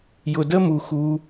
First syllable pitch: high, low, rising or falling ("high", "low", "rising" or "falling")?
low